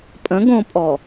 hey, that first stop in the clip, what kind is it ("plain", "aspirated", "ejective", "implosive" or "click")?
ejective